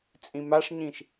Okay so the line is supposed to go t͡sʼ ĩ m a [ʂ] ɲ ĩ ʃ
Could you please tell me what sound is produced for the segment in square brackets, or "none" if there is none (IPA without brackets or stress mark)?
ʂ